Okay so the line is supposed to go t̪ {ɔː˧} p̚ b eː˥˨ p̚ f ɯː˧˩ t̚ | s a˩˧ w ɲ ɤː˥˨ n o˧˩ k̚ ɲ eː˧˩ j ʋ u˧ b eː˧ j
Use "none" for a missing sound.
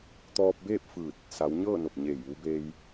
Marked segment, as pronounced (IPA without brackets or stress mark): ɔː˧